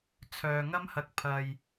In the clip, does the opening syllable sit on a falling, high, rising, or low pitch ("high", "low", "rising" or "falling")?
low